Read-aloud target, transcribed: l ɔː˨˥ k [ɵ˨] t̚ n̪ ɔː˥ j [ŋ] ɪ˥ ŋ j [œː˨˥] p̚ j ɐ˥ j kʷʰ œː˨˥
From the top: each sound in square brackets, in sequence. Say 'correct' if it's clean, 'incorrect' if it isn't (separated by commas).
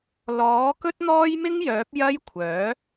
incorrect, incorrect, correct